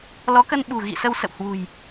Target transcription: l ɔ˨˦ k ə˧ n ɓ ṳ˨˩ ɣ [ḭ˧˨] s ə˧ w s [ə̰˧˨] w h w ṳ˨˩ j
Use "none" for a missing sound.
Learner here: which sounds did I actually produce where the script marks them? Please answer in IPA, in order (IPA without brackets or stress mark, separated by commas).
ḭ˧˨, ə̰˧˨